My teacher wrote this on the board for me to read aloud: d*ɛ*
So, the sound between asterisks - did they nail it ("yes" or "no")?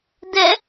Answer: yes